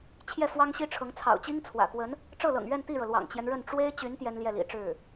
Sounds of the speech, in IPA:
t͡ɕʰ j ɛ˥˩ f w ɑ˥ ŋ ɕ i˥ ʈ͡ʂʰ ɤ˧˥ ŋ t͡sʰ ɑ̰˨˩ ʊ̯ t͡ɕ i˥ ŋ t͡sʰ w ä̰˨˩ k w ə˧˥ n | ʈ͡ʂ ɤ˥˩ l ɤ̰˨˩ ŋ ɥ ɛ˥˧ n t̪ i˥˩ ɻ ɤ˩ l w ɑ̰˨˩ ŋ t͡ɕ j ɛ˦ n ɻ ə˥˩ n ʈ͡ʂ w e˥ ɪ̯ t͡ɕ y˧˥ n t̪ j ɛ˥ n l j ɛ˥˩ l ḭ˨˩ ʈ͡ʂ ɻ̩˥˩

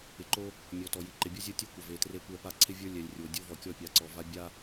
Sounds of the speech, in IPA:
ɪ˨ ǃ o˦ | mʲ ɔ˨ t ɔ˨ j i˨ ǃ ɪ˨ bʲ ɔ˦ zʲ o˦ tʲ ɔ˦ kʷ ɪ˨ v e˨ t r e˦ kʷ ɛ˦ p a˦ ǀʰ ɪ˦ vʲ ə˞˦ lʲ ɛ˨ lʲ rʲ o˨ dʲ o˦ v ɔ˨ kʲ ɔ˦˨ pʲ a˨ ǀ ɔ˨ v a˦ bʲ a˦

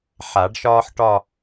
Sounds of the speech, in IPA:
ħ a˨˩˦ ɖ ʃ ɒː˥ ħ ʈ ɒ˥˧

